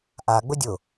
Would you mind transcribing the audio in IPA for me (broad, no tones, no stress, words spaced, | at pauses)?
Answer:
ʔa ɡ͡bʊdʲʊ